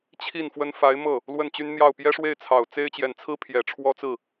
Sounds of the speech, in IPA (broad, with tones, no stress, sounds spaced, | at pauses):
t͡ɕʰ i˥˩ n f w ə˥ n f a˧˥ ɪ̯ m ɤ˥˩ | l w ə˥˩ n t͡ɕ y˥ n n̪ j ɑ˥˩ ʊ̯ p j ɛ˥ ʂ w e˥˩ ɪ̯ t͡sʰ ɑ˨˩ ʊ̯ t͡s e˥ ɪ̯ t͡ɕ j ɛ˨˩ n t͡sʰ ɹ̩˥ pʰ j ɛ˨˩ ʈ͡ʂʰ w ɔ˥ t͡s ɹ̩˥˩